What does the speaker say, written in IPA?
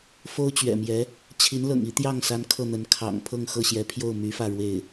fo˥ʊ̯t͡ɕɥɛ̰˨˩mjɛ˧˥ | t͡ɕʰi˧˥nlɤ̰˨˩ŋi˧˥ t̪jɑ˥˩ŋsa˧˥n kʰɤ˥˩n̪ə˧˥n kʰɑ̰˨˩ŋ pʰɤ˥˧ŋxɤ˥˩ɕjɛ˧˥pʰjo˥˩ʊ̯ my˧˥fä˥˧ ɻwe˥˩ɪ̯

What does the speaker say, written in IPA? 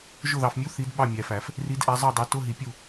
ʒʊ˦˨ðɑ˨fmʲu˧˥˧ θi˨˦d ɓɑ˦˨mʲæ˨fæ˨˩˦f | ri˨˦dʔæ˨˦zˤɑ˦˨dˤɑ˨˦ tʊ˧˥˧ɦi˨˩˦pʲu˦˨

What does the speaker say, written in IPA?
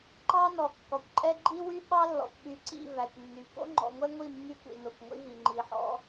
ǃɑ˦ nɔ˨kːɔ˨kʷǃʼɛ˦ ɡ͡ǃi˦wy˦ ɓɑ˦lːɔ̰˨kʷɓy˨ǀḭ˦˨ væ˨kʷnːy˨ ko̰˦ŋ͡ǃɔ̰˨ŋʷɛ˦ŋʷi˦˨ mːy˦kʷḭ˨ no˨kʷŋʷḭ˦vi˨ ŋ͡ǃi˨ħɔ̰˦

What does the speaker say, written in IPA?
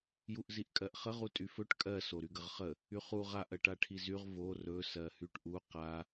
juʔziʔkʼɜʔχə ʁutʼyfɵʈ kʼɜ soɾyɡəʁχə | yχuʁ aʔ ɜʈaʈʰizyʁ vo rɵ sɜhyʈʔu qa

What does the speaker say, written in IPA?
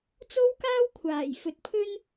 t͡so˥wkaː˥wkʷʰaː˨˩j fɵ˨t̚pʰɵ˥n

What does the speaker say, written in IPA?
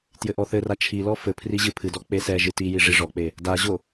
tjɘʔɔθɘra t͡ʃʰilɔ fɘ pʰriʑɨpʰɨdɔ k͡pesɛʒɨ tiji ʐiʐɔk͡pe | daʑo

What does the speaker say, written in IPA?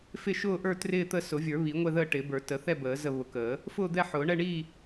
fɪ˥˨ʃʊː˥˨ʔə˞˥˨ trɪː˥˨t̪ə˥˨ sʊ˨˩˦vʲə˞˨˩˦βi˨˩˦ ŋʷɛ˥˨ðəː˥˨ʈɪː˨˩˦bə˞˨˩˦ tə˨˩˦θɛ˥˨bəː˨˩˦ zə˥˨ βʊ˨˩˦kəː˨˩˦ | fʊː˥˨d̪ɛ˥˨ħʊː˨˩˦ ɳɛ˥˨ɳiː˥˨

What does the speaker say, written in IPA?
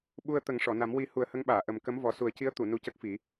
ɓu˧ə̯ t̪ə˨˩˦ŋʂɔ˨˩˨na˨˩˦m wi˨˩˦ hu˨˩˦ə̯hə˧˥ŋɓaː˨˩˨ ʔə˨˩m kə˧˥m vɔ˨˩su˨˩˦ə̯ci˧˥ə̯ t̪u˨˩˨ nu˧˥cə˦˥k̚ fi˨˩˦

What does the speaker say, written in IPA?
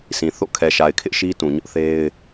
sĩ˨θo̰˦˨ kʰɛ˨ʃa˨ɪ̯kʰɪ˦ʔ ʃi˦tũ˨ ɲʊ˦ʔθe˦ɪ̯

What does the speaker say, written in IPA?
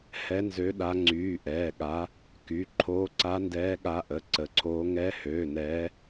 hɛ˨˦nzø˨˦ɗa˨˦ŋ͡ǀyː˩˧˩ ʔɛː˩˧˩ɠa˨˦ | ky˩˧˩ ǃʰoː˨˦ǀa˨˦ndɛː˨˦ɠa˨˦ ʔə˩˧˩ǀə˩˧˩ǀʰoː˨˦ ŋɛ˨˦høː˩˧˩nɛː˨˦

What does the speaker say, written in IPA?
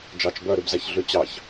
d͡ʒɑt͡ʃ bœɾybzæç ɮyt͡ɕɑç

